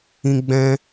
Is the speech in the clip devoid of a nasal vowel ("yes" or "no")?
no